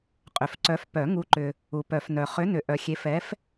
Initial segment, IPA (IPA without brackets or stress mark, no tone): qʼ